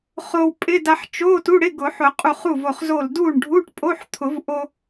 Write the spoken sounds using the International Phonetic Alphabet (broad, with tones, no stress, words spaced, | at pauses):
χo˧wpʼɪ˧˥˧ da˧ħt͡ʃo˧˥˧ tu˧˥˧ɽɪ˧˥˧ɡʊ˨˩˦ħʊ˨˩˦ qʼu˧˩χu˥˩vo˧˩χ zo˧˩ldu˥˩ɳ ɖʱu˧˥˧ʈpʼo˧˥˧ħt̪ʰʊ˨˩˦vʔo˧